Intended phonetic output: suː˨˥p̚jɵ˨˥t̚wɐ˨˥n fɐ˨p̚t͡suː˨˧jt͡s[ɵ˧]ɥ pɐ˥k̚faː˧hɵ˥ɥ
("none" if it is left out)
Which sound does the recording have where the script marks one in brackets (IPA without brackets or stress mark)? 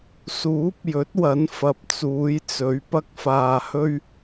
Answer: ɵ˨˥